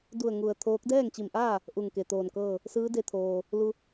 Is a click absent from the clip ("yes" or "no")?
yes